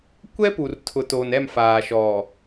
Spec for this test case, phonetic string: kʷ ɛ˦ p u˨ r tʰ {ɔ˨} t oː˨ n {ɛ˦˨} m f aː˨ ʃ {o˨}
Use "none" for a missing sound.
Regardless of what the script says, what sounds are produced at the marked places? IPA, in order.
ʊ˨, ɛ˦˨, ɔ˨

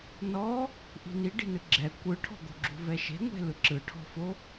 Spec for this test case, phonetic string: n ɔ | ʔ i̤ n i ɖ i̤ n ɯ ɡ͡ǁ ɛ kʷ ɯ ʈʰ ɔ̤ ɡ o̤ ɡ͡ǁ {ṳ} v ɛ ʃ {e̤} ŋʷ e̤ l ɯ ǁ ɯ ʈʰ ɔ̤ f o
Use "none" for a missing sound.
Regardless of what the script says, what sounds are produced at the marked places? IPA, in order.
ṳ, e̤

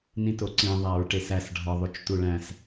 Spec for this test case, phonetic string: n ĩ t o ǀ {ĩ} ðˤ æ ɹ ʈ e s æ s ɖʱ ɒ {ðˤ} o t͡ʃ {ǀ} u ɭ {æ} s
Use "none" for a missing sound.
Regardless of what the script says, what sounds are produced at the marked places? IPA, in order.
ĩ, ðˤ, t, æ̃

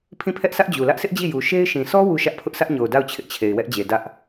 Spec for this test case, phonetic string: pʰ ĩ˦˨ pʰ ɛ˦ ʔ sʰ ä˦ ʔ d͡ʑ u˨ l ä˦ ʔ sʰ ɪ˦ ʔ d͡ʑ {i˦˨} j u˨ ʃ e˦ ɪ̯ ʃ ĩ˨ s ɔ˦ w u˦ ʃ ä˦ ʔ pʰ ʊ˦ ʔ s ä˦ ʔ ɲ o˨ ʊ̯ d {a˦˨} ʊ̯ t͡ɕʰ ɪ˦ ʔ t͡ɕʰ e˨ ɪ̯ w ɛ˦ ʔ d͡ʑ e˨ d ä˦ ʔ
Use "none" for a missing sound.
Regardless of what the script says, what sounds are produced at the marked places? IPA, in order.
i˦˨, a˦˨

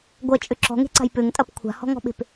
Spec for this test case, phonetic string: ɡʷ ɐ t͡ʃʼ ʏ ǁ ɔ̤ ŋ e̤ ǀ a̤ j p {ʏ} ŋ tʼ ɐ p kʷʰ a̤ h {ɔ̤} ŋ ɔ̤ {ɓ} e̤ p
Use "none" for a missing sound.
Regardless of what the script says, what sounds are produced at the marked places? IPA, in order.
ʏ, ɔ̤, ɓ

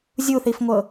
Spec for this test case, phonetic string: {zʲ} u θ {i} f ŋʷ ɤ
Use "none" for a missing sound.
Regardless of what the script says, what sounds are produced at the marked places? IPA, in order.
zʲ, i

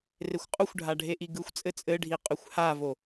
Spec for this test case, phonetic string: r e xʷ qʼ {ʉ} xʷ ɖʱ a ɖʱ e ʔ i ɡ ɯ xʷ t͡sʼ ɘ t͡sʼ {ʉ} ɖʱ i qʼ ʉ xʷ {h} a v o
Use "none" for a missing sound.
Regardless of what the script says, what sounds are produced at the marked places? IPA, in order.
u, ɘ, h

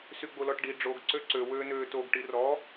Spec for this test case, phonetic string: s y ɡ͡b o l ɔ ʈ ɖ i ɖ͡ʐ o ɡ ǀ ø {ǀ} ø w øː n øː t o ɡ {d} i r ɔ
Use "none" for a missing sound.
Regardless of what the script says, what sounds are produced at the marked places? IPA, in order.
ǀ, ʈ

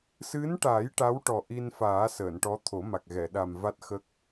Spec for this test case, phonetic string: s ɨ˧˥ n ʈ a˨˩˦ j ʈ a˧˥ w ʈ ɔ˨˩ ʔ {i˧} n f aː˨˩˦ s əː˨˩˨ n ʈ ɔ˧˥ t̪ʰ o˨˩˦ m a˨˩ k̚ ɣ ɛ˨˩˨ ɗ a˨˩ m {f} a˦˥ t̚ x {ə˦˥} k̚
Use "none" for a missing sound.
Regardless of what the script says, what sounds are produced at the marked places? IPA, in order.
i˧, v, ə˦˥

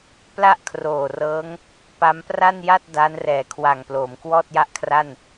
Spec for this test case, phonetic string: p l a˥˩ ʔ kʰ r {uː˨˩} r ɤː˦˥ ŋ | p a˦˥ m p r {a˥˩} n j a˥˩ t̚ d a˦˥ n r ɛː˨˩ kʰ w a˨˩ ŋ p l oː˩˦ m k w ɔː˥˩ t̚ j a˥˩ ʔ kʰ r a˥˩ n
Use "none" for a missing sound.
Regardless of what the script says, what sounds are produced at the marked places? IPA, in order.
oː˨˩, a˥˩

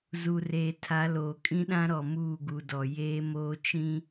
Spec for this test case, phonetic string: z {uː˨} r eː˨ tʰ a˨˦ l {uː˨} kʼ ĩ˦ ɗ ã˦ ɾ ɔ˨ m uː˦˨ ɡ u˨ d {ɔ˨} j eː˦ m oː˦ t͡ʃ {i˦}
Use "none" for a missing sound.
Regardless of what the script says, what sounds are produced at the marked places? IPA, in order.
u˨, oː˨, ɔ˨, ĩ˦

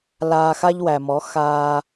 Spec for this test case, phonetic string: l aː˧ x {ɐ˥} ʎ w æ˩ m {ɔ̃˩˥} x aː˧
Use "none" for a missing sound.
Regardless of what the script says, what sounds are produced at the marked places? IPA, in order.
a˥, ɔ˩˥

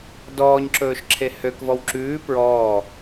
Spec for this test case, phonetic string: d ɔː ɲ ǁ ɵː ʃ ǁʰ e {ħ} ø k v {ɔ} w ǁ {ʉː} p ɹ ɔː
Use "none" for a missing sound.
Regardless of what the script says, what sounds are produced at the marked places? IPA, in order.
h, ɔ, ʉː

